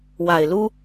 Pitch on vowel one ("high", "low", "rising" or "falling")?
low